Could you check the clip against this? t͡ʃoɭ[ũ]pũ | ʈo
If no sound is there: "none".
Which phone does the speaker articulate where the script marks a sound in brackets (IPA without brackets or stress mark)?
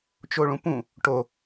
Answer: ũ